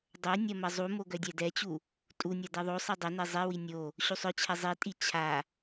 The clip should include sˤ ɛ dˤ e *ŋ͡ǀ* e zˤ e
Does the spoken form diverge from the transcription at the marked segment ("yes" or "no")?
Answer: yes